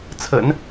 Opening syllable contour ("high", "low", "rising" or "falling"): low